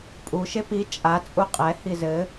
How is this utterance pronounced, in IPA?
pʼu ʃepi t͡ʃʼa t͡sʼuqʼɛ hizɘ

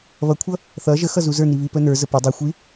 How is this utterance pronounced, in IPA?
βʌkʷʰʌ | θʌ ʒəxʌ zuzə˞ni βipənə˞zə pʌ dˤixʷi

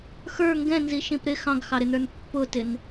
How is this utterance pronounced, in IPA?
xə˞ ŋɡɛ̃nziʃĩp ɾɪ xɑ̃ɡxɑɾɪnə˞n pːʊtɪn

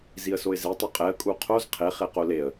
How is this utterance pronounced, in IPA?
ziə̯soɪ̯ze tˤoqʼɛə̯kʼu qʰoz qʰeχeqo leə̯

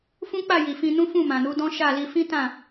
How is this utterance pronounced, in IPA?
fũ˦k͡pa˦˨ ji˨fĩ˧nũ˦fũ˦˨ mã˨nu˨˦dɔ̃˦ ʃa˦˨li˧ fĩ˦tã˦˨

